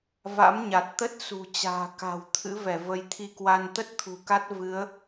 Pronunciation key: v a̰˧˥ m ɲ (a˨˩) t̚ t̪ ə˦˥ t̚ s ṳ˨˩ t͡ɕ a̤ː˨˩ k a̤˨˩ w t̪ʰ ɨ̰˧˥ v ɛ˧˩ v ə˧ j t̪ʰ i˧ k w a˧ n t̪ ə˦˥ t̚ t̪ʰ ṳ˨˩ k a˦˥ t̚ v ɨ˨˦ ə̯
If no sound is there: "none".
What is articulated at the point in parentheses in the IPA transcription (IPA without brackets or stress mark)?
a˨˩